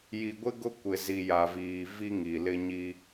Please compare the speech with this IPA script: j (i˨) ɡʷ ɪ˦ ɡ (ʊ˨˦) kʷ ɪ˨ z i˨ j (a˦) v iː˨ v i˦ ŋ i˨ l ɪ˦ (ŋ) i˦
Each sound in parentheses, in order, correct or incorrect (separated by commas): correct, incorrect, incorrect, incorrect